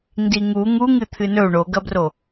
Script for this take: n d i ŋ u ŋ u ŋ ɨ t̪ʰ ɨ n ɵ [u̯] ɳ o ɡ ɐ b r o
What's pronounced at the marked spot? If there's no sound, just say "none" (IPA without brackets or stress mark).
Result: u̯